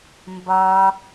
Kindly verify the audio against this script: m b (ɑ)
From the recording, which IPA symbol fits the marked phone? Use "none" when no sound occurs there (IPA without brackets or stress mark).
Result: ɒ